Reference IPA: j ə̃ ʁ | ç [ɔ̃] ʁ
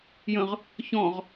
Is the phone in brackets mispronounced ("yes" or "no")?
no